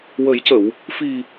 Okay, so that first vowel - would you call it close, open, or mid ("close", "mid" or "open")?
mid